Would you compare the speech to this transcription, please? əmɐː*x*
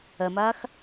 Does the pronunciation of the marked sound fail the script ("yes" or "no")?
no